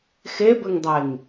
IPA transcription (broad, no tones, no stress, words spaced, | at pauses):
xebɘŋdˤeŋ